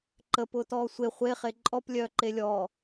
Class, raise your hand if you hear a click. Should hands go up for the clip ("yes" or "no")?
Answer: yes